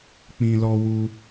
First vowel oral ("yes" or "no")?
no